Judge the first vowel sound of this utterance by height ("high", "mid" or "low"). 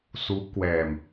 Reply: high